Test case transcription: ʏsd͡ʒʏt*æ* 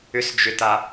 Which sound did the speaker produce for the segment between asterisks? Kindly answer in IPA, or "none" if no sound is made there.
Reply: a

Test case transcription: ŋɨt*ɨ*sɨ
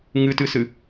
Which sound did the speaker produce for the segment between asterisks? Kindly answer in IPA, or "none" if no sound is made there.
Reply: ɨ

